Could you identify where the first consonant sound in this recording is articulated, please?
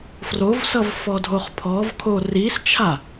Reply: labial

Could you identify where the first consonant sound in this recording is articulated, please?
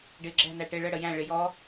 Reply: retroflex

